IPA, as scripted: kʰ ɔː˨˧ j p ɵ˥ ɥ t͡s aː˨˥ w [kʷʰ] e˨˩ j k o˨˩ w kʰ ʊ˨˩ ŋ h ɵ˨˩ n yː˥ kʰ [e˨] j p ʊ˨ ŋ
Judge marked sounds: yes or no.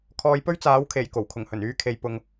no, no

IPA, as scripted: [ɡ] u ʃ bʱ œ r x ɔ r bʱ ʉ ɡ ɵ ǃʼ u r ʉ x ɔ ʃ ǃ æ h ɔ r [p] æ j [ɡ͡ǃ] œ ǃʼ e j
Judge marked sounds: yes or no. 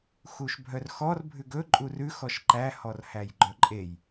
no, no, yes

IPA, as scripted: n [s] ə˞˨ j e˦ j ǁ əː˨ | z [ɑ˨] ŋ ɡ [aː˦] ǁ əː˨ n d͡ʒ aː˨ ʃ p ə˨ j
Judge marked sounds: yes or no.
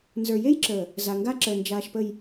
no, no, no

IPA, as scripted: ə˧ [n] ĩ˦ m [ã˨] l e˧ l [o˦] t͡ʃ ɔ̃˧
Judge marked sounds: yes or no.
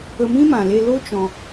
no, yes, yes

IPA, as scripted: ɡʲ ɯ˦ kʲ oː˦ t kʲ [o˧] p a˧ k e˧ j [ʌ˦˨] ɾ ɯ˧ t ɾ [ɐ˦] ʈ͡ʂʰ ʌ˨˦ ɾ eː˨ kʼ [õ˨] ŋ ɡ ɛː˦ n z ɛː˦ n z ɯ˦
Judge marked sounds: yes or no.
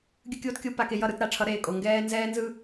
no, yes, no, no

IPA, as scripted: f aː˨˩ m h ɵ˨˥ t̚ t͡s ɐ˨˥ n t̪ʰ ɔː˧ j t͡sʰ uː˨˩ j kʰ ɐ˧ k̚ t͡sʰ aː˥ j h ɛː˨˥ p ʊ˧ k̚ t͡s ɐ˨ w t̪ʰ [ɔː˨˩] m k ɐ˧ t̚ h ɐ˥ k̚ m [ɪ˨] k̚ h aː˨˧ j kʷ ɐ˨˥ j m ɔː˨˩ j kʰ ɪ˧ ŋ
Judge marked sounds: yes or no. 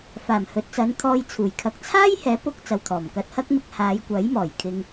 yes, no

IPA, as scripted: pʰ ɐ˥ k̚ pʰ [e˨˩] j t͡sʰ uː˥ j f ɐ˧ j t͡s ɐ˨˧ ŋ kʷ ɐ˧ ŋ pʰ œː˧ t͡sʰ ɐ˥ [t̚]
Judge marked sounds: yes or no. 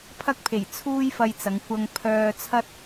yes, yes

